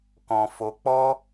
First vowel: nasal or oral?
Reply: nasal